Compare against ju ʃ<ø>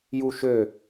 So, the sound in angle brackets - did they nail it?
yes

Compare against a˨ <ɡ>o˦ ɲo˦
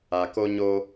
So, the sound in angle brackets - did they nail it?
no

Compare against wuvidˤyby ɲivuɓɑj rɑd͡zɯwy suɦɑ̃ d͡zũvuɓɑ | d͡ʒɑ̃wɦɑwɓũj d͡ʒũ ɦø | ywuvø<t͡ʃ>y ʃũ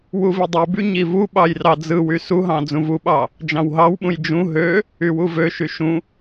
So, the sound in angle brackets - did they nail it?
no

